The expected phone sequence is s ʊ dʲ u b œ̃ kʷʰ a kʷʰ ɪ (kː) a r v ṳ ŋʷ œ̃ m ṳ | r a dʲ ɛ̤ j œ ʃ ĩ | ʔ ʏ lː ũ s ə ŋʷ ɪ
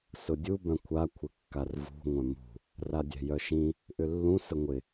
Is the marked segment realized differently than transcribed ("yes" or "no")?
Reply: no